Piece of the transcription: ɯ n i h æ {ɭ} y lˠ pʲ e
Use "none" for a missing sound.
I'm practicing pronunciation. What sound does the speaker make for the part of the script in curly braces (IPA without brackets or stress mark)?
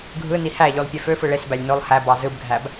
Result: ʎ